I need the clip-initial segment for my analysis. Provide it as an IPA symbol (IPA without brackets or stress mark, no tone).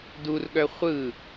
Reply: d